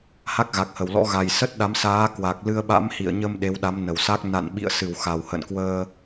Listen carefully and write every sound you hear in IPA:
h a˦˥ k̚ ɣ a˨˩ k̚ h ə˧˩ w l ɔ̰˧˥ ɣ a˨˩ j s ə˦˥ t̚ ɗ a˨˦ m s aː˨˦ k w a˨˩ k̚ l ɨ˧ ə̯ ɓ a̰˧˥ m h ḭ˧˨ ə̯ ɲ ə˧ m ɗ e˨˦ w ɗ a˨˦ m n ə˧˩ w s a˦˥ k̚ n a̰˧˨ n ɓ ḭ˧˨ ə̯ s ɨ˧˩ w x a˨˩ w h ə̰˧˨ n k w əː˧

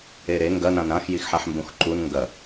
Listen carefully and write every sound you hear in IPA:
e ɾ e ŋ ɡ ɐ n ã n ɾ ã x j i x ħ a ħ m b ũ x ǃ u n ŋ ɡ ɐ

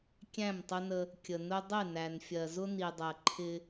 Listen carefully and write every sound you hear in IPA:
kʲ æ̃˦˨ m tˤ ʊ˦ n ə˦ | kʲ ə˨ n ʊ˦ dˤ ɪ˦˨ n æ˨ n fʲ ɜ˨ z ʊ˦ n i˨ dˤ ɜ˨ ǃʰ ɪ˦

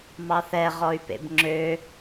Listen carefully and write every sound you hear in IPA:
m ɑ θ ɛ ʁ ɔ y̯ p ḛ b ŋ͡ǁ ø

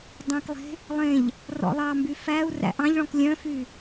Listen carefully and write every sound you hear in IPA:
dˤ œ̃ k lˠ e̤ | lˠ ẽ ʎ | r ɔ̰ lˠ ɑ m b y f æ u̯ r æ̰ ʔ ɑ̃ ʎ ɭ ɔ̃ k lʲ œ̃ f y

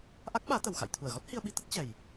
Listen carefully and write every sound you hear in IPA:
ʔ a˦˥ k̚ ɓ aː˨˦ t̪ ə˨˩ w x a̰˧˨ j t̪ʰ u˧˩ ə̯ ɣ ɔ˦˥ t̚ h i˧ ə̯ ɓ i˨˦ t̪ ə˦˥ t̚ t͡ɕ ɛ˨˩ j

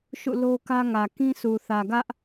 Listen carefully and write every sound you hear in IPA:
ʃ ṵ˦˨ l o˦ k ä˦ ŋ ä˨ k ĩ˦ s u˨ θ ä˨ ɡ ä˦ ʔ

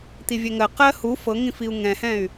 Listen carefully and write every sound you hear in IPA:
t̪ i vʲ ɛ ŋ ɜ q ɜ h u f ɤ ŋ ĩ f i u̯ ŋ ɛ̃ h ɛ̃ y̯

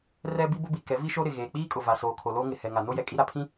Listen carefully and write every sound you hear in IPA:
r ɛ˦ b i˦ b ʊ˦ b i˨ k ɛ˨˦ v i˦ ʃ o˦ ɾ ɪ˨ ɣ eː˨ k͡p iː˦ kʼ ʊ˨ v a˨ s oː˨ kʰ o˨ l o˦ ŋ ɪ˨ h ɛ˨ ŋ a˨ n o˦ j ɛ˨ kʼ i˦ ɾ a˨ pʰ ĩ˦

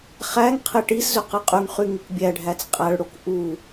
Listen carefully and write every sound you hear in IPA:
χ æ ŋ qʰ e ʈ i s z ø q ɯ qʼ y ŋ χ y ŋ i k bʲ æ ɖʱ æ t͡s qʼ æ ɭ ɽ o k ʔ u

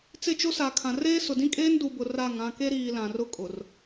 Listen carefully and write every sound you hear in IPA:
t͡s ɪ˦˨ t͡ʃ o˦ s a˨ kʰ ã˨ r eː˦ s ʊ˨ d ĩ˦ kʼ eː˦ n d u˨ b ʊ˨ r a˦˨ ŋ ã˦˨ k e˦ ɾ iː˨ l ã˨ r ʊ˦ kʼ ʊ˨ r

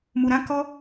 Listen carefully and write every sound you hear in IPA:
m u˨ ɾ ã˨˦ k ɔ˦

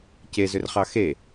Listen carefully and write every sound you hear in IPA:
c e z ʏ r χ ɑ x e

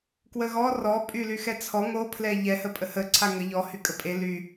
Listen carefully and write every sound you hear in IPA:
k w ə ɣ ɔ r ɔ pʼ y l y x ɛ t͡sʰ ɔ ŋ o pʰ l ɛ ʎ ɛ h ə pʼ ə h ə ǀʰ a ŋ ə ʎ ɔ h y kʼ ə pʼ e l y

